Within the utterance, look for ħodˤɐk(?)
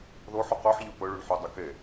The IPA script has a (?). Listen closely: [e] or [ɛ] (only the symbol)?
e